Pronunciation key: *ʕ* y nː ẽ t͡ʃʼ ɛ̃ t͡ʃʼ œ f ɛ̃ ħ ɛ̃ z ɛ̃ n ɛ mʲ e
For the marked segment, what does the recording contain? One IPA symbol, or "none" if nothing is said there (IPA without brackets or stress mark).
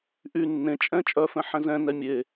ʔ